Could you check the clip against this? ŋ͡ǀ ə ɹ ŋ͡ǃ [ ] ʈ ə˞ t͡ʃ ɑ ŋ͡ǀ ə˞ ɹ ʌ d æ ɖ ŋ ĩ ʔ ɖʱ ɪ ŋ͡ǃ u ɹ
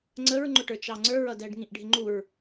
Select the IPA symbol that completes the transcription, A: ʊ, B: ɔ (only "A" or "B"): A